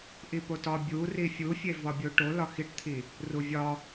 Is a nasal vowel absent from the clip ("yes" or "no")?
yes